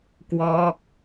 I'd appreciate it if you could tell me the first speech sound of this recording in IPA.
k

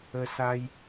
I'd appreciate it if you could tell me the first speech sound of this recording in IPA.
ə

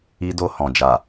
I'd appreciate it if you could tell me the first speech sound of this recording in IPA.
i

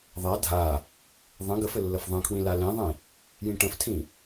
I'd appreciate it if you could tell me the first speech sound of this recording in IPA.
ðˤ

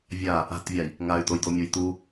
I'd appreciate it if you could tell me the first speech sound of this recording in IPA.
vʲ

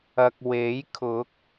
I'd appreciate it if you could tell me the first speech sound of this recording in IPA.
ɐ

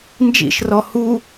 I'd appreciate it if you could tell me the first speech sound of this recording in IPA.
n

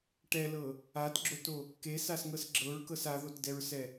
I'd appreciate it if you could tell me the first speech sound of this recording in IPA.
ʈ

